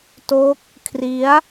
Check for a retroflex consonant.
absent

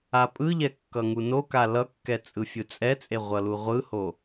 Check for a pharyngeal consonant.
absent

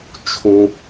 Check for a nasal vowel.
present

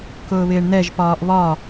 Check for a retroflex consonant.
present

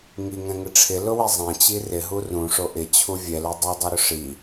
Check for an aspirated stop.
present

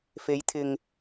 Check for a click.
absent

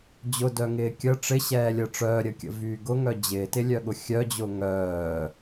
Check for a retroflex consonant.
present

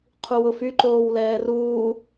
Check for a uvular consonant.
present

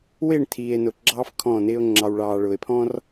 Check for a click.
present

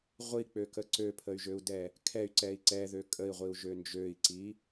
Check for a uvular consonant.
present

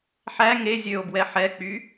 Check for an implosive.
absent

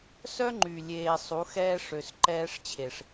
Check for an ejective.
absent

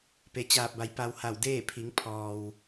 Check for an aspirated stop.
present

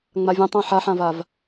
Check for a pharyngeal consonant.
present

